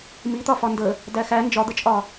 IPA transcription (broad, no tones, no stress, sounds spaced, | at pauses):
m i t̪ ɒ f ɒ n d ə | d æ x æ n d͡ʒ ɒ d̪ ə t͡ʃʼ ɒ